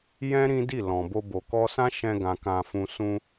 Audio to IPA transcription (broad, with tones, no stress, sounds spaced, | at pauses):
j ɛ̃˦ ɾ ĩ˦ d i˦˨ l ɔ̃˨ b o˧ b o˨ k ɔ˧ s ã˦ ʃ ɛ̃˧ ɡ ã˨ k ã˨ f ũ˨ s ũ˧